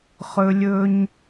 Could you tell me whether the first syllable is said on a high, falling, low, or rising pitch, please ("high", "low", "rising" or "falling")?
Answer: high